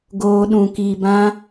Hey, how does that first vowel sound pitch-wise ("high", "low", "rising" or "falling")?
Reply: high